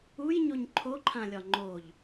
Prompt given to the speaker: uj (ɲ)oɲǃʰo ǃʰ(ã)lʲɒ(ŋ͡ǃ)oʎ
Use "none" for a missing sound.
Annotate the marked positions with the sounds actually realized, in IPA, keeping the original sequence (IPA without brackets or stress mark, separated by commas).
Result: ɲ, ã, ŋ͡ǃ